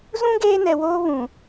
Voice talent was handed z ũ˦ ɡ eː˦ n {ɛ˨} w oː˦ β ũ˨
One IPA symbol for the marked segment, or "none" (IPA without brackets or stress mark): ɛ˨